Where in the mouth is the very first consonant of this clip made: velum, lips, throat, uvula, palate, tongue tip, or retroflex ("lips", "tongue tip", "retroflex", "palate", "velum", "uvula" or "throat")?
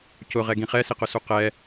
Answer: palate